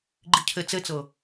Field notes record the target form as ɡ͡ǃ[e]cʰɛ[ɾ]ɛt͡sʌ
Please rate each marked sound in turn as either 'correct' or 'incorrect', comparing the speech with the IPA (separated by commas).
incorrect, incorrect